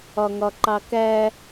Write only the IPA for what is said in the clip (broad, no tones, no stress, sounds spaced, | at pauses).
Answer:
ɒ ŋ ɒ ǃ ɑ k æ